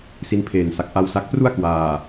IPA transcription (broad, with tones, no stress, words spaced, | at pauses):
si˧npʰeː˨˩nsa˨˩k̚ ʔa˦˥wsa˦˥k̚ pru˥˩a̯kwaː˨˩